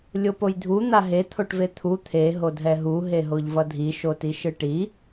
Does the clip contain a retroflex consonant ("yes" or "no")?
yes